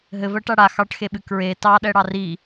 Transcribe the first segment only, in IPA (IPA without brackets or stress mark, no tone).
ɦ